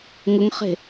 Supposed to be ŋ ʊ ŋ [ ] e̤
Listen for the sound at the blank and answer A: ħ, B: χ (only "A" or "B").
B